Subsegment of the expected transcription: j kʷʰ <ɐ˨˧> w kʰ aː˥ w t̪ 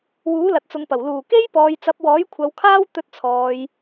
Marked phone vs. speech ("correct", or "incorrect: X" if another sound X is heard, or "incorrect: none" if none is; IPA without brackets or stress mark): correct